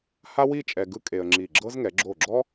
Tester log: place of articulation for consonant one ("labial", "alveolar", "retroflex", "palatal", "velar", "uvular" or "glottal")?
glottal